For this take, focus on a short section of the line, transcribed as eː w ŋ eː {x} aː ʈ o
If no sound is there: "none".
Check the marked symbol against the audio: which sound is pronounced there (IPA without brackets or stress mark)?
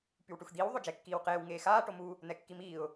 x